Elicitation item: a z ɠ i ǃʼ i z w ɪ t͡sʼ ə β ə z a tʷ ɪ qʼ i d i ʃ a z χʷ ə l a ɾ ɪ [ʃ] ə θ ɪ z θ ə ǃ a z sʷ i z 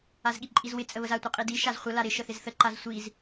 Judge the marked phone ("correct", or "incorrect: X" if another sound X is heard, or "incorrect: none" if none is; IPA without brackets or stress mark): correct